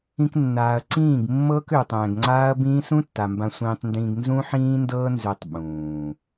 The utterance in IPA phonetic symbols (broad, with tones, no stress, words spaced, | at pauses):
ĩ˧knːaː˨ɐ̯ ǀĩː˦˨ɡmːɤː˦kø˨ tˤɛ̃ː˨ɡŋ͡ǀaː˦ɐ̯bĩː˦ sũ˦tːa˨ mbã˧sʷĩː˧tˤndĩː˧ɡ nzũ˦ħĩː˦ndɤː˦ nzø˧tˤɓũː˨